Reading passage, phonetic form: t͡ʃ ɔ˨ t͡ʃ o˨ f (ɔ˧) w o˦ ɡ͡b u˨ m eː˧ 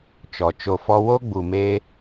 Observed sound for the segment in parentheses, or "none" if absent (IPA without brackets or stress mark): ɔ˧